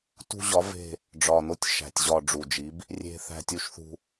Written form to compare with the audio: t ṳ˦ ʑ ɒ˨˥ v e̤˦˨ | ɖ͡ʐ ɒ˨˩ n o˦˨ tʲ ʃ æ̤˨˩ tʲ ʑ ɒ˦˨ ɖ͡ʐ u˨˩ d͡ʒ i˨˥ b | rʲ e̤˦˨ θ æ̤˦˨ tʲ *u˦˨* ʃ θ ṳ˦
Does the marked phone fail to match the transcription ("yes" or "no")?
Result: yes